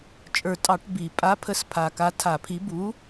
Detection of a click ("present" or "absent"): absent